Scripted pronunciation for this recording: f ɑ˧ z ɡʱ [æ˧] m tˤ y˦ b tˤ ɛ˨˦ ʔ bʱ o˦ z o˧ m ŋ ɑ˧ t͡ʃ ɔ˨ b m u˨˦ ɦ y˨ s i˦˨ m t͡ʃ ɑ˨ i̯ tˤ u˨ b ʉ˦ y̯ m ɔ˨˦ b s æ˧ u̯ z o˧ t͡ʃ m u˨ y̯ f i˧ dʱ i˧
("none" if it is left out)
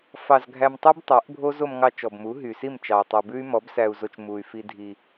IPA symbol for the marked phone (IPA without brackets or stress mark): æ˧